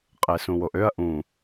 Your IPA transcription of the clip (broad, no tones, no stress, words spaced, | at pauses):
qʼesũwoʔøɐ̯ ʔũ